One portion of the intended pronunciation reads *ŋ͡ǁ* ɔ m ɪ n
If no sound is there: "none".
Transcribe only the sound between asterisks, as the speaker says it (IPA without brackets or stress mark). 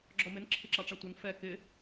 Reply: ɡ͡ǁ